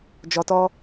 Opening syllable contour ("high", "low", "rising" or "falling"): low